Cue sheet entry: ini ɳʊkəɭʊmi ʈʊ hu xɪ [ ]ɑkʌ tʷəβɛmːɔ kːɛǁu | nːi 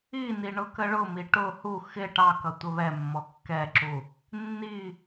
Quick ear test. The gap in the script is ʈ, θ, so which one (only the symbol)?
ʈ